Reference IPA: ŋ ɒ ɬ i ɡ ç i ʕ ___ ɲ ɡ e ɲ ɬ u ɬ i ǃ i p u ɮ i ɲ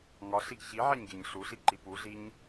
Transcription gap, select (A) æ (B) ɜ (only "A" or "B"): A